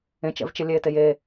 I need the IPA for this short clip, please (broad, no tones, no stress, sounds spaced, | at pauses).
ẽ t͡ʃ ɛ̰ v t͡ʃ ɪ lʲ eː t e j eː